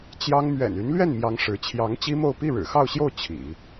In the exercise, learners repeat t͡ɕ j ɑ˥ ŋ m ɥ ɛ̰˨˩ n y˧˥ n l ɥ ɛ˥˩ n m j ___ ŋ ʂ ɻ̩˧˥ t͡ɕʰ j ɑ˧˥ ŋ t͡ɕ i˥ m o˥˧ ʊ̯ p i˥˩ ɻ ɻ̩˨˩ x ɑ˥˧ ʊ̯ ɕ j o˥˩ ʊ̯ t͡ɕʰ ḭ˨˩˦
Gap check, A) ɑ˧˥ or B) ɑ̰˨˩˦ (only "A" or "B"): A